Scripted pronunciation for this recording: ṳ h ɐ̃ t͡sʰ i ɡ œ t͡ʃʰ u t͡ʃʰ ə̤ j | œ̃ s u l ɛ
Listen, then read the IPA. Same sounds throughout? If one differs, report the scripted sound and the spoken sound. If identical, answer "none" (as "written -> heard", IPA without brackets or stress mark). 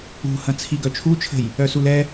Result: œ̃ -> œ